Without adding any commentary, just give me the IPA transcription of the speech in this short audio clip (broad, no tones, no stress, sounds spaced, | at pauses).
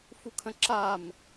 f u kʰ ə̃ ǁ a m